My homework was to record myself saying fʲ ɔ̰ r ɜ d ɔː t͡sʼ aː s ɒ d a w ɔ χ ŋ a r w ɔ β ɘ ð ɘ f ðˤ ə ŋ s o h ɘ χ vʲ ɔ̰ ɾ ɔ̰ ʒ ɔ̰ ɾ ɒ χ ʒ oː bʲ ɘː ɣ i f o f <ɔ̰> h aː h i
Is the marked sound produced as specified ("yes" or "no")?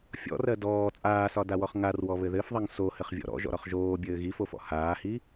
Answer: yes